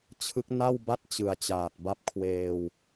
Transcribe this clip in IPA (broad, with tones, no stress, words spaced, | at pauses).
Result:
t͡ɕʰɯ˦˥k̚ na˥˩wba˥˩t̚ t͡ɕɯ˨˩a̯t͡ɕaː˨˩t̚ba˥˩p̚ kʰweː˧w